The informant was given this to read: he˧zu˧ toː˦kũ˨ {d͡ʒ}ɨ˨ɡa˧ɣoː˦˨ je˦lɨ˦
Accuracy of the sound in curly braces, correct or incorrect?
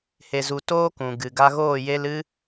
incorrect